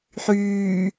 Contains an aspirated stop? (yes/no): no